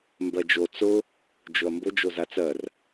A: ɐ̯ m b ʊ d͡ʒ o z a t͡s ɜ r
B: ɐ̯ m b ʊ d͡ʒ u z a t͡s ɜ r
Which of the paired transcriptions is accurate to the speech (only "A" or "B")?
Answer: A